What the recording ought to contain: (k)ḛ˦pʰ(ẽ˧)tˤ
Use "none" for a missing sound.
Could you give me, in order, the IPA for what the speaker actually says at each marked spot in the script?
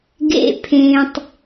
ɡ, ẽ˧

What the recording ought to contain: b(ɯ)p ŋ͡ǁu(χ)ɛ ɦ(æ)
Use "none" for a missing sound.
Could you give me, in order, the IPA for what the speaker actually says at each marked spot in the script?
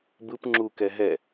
ɯ, k, ɛ

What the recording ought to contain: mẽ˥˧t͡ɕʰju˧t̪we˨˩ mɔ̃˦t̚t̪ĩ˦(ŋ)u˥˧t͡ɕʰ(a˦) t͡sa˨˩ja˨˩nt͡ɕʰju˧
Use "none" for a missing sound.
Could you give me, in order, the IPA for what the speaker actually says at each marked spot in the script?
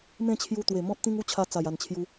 ŋ, a˧

